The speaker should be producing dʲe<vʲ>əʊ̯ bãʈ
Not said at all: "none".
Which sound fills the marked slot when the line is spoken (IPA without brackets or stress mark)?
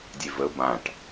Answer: v